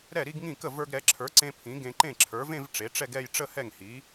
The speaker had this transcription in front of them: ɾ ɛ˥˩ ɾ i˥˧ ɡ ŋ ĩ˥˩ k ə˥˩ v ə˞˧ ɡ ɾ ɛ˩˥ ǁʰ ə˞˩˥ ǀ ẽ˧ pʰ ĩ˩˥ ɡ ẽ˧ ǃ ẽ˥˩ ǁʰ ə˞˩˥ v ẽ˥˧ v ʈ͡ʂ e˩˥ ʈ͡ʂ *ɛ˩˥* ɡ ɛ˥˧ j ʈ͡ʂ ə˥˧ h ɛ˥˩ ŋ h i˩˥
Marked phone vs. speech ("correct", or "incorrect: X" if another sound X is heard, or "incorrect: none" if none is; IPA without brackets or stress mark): incorrect: ɛ˥˧